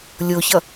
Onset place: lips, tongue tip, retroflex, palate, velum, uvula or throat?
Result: tongue tip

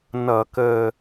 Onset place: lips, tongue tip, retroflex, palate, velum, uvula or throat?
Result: tongue tip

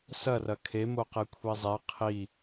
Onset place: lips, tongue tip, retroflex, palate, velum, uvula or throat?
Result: tongue tip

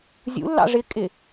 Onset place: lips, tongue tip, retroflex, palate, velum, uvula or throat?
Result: tongue tip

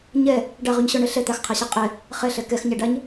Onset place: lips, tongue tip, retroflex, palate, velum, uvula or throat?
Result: palate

